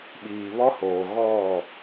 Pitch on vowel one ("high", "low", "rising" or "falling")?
low